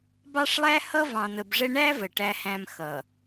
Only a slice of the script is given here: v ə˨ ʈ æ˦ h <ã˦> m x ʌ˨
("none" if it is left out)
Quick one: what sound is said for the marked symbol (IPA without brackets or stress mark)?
æ̃˦